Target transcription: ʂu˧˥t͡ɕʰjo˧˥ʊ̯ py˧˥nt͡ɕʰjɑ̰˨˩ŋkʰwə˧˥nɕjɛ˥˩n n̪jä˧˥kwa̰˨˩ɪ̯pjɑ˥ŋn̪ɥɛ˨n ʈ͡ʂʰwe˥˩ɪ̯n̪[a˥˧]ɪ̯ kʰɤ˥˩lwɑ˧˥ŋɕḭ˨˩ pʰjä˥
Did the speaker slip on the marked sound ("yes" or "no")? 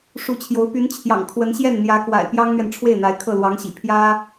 yes